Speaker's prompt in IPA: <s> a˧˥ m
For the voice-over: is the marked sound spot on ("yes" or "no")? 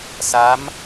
yes